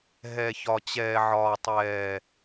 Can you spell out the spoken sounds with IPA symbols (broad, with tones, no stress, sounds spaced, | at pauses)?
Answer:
ɦ ɛː˨ ç ɒ˨ t͡ɕ ɛː˨ ʕ ɒː˨ tˤ ɛː˨